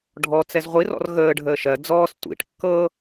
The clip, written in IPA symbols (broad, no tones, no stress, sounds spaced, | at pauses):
ɖʱ ɔ t͡s ɛ z ʁʷ i r ɔ̰ r ɣ əː ɖʱ əː ʃ ɜ d͡z ɔː s tʷ ḭ ʈ kː ɤ